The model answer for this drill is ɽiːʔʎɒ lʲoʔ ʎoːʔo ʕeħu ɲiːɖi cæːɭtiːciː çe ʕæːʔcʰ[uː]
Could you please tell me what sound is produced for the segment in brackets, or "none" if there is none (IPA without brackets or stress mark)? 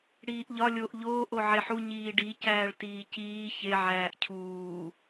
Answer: uː